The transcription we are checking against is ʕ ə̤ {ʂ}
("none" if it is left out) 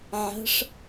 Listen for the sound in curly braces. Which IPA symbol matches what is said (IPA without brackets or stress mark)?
ʂ